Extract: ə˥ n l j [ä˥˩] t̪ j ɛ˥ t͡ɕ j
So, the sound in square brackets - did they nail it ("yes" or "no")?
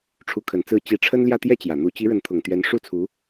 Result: yes